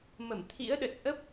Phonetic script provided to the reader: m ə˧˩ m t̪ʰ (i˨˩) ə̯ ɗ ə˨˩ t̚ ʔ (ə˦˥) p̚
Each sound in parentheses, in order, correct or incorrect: incorrect: ḭ˧˥, correct

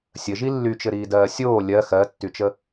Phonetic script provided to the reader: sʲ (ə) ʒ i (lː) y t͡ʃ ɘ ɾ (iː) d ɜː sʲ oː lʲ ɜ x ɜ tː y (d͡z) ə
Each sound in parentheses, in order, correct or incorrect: correct, correct, correct, incorrect: t͡ʃ

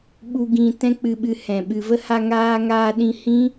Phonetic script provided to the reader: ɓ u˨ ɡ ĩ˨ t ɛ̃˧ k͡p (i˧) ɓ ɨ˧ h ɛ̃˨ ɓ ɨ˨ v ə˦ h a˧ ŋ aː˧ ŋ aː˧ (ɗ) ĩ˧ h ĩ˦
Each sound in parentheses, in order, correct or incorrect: incorrect: ɨ˧, correct

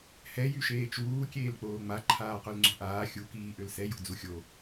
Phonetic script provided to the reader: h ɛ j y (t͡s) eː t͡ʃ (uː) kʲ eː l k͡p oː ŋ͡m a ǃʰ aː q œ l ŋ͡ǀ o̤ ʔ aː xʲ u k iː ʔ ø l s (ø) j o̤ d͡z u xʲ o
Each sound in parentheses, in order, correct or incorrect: incorrect: ʃ, correct, incorrect: ɛ

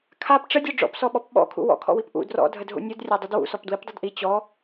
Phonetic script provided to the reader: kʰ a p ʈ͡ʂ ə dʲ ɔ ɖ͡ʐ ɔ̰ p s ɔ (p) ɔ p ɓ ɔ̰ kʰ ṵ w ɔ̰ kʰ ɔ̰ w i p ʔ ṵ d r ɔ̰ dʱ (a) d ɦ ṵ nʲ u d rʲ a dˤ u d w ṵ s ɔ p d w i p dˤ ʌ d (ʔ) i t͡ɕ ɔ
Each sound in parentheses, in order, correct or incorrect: incorrect: ɓ, incorrect: ə, correct

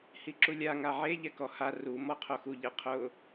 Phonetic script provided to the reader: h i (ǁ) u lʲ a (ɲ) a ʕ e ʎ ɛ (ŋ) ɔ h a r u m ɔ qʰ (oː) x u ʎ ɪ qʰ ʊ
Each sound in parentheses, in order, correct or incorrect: correct, incorrect: ŋ, incorrect: k, incorrect: o

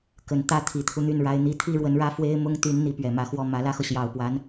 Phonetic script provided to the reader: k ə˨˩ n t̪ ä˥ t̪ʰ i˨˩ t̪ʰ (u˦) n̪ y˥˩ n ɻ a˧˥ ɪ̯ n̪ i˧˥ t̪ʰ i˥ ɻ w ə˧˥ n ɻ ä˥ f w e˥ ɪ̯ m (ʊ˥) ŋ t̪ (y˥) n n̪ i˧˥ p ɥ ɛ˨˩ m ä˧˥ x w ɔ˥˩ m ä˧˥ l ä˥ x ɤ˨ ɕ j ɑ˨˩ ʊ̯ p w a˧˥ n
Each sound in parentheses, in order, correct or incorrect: correct, correct, incorrect: y˧˥

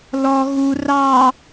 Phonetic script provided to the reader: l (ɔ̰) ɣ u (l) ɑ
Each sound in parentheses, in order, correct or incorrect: incorrect: ɔ, incorrect: r

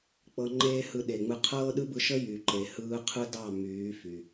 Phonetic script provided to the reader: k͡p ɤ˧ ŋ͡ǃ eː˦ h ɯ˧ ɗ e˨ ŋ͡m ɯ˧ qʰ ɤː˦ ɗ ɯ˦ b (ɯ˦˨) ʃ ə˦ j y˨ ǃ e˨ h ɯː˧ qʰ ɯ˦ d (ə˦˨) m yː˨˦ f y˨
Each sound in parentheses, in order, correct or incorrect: incorrect: ɯ˧, incorrect: ɑ˦˨

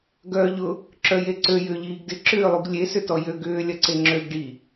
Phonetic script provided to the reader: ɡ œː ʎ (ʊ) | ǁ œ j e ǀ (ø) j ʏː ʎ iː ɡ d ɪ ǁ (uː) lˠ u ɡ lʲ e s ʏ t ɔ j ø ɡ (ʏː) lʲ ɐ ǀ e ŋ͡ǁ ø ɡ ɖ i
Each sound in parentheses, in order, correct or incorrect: correct, correct, incorrect: ʏː, correct

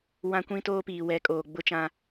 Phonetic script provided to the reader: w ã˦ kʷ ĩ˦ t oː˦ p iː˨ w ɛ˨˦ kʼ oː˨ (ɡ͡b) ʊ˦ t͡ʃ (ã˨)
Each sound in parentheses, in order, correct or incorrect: correct, incorrect: ã˦

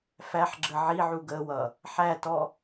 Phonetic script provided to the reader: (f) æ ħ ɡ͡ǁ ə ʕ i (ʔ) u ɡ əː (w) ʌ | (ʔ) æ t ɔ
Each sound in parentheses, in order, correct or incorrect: correct, incorrect: ʕ, correct, incorrect: ħ

